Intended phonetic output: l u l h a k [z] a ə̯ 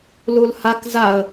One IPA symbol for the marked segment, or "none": z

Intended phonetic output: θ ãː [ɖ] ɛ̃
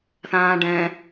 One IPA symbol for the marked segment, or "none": ɖ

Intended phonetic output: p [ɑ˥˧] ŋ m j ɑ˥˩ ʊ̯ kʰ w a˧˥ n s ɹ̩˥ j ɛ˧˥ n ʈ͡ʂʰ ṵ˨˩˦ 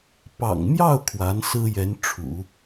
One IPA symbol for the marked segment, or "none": ɑ̰˨˩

